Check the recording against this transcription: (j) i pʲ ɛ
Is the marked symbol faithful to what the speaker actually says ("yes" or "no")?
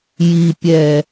yes